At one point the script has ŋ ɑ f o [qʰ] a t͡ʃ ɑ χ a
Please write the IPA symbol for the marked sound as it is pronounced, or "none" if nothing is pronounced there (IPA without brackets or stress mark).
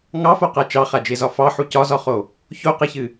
q